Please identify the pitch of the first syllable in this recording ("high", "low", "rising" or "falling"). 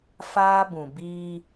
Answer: high